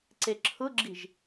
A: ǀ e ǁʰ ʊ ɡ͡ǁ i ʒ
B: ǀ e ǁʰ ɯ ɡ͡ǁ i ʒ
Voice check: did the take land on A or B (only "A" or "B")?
A